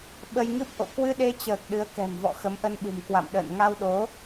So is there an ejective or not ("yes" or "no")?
no